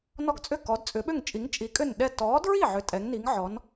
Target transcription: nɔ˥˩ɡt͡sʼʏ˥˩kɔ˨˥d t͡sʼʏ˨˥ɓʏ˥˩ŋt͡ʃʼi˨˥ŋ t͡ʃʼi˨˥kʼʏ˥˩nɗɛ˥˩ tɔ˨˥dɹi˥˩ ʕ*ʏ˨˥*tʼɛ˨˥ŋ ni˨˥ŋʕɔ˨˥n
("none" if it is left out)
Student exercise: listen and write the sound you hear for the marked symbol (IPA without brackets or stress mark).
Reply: ʏ˨˥